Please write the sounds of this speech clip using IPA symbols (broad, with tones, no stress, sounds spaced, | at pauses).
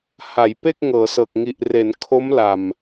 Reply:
h a˩˦ j p e˥˩ k̚ ŋ ɤː˩˦ s ɤː˨˩ k̚ ŋ i˨˩ ʔ r e˩˦ n kʰ o˦˥ m l a˨˩ m